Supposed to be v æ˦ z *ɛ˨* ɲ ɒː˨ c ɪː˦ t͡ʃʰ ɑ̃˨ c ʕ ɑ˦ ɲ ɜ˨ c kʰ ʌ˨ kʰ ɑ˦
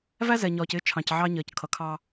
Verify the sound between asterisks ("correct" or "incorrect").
correct